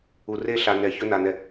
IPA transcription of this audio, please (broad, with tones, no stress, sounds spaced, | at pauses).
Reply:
u˨ r e˦ ɬ a˨ n ɛ˨ ç ɵ˦ n a˨ n ɛ˨